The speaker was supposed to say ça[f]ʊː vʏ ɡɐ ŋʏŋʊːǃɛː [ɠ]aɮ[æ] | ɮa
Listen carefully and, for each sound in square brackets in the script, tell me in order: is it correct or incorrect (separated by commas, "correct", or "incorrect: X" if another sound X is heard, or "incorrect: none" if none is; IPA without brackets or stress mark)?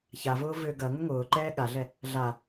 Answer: incorrect: v, correct, incorrect: ɛ